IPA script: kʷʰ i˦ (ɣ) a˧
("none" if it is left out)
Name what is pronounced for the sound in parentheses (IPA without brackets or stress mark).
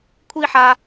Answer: ħ